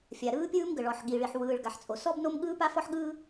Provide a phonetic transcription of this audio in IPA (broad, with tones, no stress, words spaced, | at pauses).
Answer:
fʲa˩ɾɯː˥pʲɯː˥m ɡə˩ɭɔ˩ħɠi˩ɭi˩ħ wɯː˩ɭ ɡa˩ħt͡sʼo˩ sɔ˥bno˥m ɠɯː˥pa˥fɔ˥ħ ɠɯː˥